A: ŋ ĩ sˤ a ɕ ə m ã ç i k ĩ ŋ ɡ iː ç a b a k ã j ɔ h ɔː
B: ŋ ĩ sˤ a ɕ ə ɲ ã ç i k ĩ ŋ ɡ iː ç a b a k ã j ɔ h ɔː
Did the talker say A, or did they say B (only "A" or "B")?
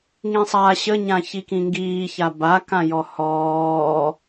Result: B